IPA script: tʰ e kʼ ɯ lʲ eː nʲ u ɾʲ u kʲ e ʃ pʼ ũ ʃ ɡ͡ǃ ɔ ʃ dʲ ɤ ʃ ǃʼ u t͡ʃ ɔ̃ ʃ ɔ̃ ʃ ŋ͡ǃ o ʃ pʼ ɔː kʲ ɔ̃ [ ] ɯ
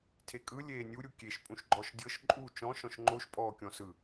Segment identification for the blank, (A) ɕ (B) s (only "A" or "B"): B